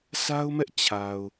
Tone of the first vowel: high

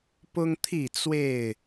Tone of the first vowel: high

